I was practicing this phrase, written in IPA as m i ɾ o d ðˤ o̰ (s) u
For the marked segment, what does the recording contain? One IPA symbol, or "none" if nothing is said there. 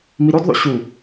ɕ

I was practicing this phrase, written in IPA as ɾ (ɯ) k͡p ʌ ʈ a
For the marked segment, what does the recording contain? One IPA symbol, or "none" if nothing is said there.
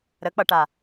ə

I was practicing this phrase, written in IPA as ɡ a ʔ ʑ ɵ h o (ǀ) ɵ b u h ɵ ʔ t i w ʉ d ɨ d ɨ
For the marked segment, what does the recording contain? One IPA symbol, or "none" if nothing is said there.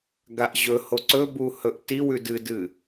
ǀ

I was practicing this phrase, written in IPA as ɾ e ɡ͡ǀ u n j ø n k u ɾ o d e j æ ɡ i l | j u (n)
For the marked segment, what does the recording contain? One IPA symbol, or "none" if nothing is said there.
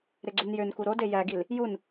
n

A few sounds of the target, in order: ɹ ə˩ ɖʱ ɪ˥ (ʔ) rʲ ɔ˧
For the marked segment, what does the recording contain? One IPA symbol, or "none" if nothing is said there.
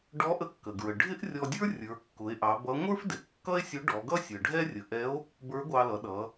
ʔ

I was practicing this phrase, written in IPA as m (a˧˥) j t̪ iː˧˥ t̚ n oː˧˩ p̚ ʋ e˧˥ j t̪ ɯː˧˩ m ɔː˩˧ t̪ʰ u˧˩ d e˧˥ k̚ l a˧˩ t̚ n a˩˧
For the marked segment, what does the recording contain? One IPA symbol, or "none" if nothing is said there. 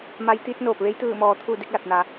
a˧˥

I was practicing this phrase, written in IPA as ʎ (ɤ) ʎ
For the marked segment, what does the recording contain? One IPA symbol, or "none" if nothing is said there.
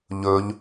ɵ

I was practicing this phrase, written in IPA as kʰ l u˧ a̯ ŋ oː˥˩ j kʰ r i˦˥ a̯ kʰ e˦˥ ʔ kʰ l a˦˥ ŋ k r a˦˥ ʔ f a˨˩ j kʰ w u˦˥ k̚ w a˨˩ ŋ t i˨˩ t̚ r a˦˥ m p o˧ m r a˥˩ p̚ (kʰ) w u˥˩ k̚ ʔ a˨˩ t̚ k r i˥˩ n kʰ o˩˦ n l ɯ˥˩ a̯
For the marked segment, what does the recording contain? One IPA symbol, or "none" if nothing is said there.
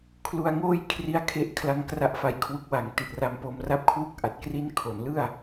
kʰ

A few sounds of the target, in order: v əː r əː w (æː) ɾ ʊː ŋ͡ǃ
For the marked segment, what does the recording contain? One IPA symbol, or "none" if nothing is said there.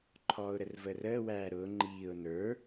æː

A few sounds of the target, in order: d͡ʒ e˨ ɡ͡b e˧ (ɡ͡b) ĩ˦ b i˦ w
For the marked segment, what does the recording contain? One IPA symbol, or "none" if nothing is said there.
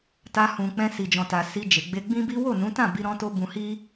ɡ͡b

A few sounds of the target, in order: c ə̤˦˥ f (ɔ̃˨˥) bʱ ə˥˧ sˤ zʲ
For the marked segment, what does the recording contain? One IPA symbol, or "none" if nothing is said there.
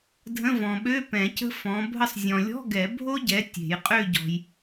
ɔ̃˨˥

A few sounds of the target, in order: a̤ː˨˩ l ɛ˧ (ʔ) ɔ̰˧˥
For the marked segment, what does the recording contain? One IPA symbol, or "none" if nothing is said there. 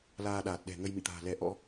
ʔ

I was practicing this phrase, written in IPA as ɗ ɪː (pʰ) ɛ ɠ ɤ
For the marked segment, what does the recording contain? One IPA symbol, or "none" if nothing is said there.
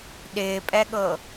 pʼ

